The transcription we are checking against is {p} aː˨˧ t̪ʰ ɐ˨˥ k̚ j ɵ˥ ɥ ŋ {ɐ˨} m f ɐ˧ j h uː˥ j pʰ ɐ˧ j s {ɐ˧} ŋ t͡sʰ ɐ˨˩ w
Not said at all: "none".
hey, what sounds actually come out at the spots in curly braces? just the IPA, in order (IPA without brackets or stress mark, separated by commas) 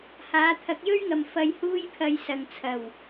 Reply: h, ɐ˨, ɐ˨